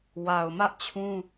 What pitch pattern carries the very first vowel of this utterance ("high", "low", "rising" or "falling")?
low